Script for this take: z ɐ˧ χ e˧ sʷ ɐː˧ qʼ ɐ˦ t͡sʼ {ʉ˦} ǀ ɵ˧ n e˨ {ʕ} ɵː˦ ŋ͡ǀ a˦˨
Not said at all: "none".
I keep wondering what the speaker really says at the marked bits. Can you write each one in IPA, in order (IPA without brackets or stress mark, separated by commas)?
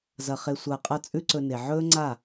ʉ˦, ʕ